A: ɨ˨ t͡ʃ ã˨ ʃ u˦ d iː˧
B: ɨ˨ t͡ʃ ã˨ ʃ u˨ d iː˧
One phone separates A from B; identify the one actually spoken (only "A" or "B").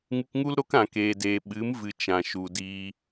B